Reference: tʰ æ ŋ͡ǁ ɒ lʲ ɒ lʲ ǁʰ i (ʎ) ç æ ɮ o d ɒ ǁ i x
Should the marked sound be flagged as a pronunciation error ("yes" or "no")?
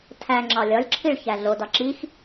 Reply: yes